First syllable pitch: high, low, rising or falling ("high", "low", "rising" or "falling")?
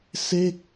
falling